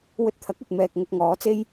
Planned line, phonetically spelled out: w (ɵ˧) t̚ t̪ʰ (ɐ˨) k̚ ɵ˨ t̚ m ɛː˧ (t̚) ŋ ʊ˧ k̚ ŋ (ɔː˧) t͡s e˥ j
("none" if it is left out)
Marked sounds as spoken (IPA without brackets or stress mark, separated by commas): ɵ˧, ɐ˨˥, k̚, ɔː˨˥